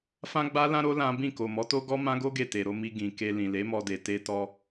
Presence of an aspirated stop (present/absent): absent